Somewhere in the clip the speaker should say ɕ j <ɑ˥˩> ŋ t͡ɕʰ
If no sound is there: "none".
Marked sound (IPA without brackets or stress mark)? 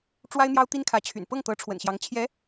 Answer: ɑ˧˥